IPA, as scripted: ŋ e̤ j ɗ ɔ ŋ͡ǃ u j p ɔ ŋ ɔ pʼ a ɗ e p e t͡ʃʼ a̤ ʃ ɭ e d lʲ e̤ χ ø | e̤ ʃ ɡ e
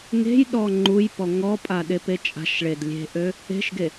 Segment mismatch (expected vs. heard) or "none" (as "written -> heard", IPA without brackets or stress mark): χ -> ʔ